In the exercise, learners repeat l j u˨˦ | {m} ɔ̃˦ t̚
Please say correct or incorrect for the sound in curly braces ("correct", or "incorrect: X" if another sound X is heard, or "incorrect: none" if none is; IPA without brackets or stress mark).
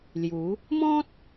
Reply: correct